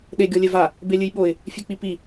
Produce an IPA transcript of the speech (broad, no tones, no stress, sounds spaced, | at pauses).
ɗ e ɡʲ ɔ lʲ ɛ v a | b e lʲ ɨ j ɓ o ɪ̯ | fʲ e k͡p i p i